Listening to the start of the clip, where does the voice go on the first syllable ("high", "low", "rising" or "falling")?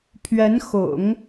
rising